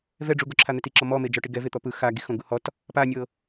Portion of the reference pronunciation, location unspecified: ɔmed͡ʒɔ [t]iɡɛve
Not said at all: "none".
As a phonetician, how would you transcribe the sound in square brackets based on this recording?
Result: ʈ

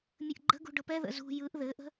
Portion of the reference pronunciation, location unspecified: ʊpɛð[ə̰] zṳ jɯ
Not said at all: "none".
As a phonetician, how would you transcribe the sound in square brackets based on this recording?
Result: ə̰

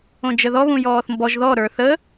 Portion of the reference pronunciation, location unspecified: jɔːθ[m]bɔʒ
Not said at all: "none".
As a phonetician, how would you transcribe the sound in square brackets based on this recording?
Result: m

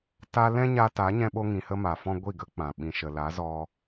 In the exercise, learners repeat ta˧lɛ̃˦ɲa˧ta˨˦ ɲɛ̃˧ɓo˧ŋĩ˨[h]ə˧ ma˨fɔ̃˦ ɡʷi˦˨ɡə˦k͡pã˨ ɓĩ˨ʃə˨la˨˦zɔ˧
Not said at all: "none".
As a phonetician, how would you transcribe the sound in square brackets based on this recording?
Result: h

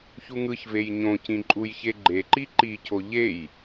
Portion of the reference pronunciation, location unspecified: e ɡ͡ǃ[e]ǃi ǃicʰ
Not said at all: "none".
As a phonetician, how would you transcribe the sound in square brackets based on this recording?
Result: e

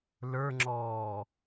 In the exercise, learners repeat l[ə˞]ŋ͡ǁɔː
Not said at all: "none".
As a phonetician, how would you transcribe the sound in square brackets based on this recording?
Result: ə˞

